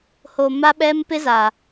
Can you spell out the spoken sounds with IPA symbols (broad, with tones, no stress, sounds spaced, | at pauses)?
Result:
h o˨ m a˦ ɓ ɛ˦ m p ɪ˦ z a˨